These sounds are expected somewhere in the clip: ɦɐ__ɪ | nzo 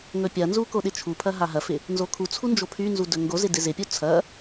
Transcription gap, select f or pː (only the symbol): f